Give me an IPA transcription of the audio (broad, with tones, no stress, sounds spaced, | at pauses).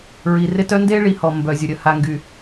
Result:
ɹ i˨ r ɪ˦ t œ˦ n d e˦ ɭ i˨ h ɔ˨ m b œ˨ zʲ ʊ˨ ɾʲ ə˨ h a˨ ŋ ɡ y˨